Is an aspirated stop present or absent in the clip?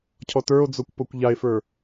present